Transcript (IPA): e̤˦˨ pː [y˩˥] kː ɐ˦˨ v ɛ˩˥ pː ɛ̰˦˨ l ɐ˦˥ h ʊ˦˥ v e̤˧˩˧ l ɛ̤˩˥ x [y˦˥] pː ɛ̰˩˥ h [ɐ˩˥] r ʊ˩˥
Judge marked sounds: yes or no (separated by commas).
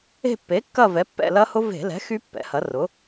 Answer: no, yes, yes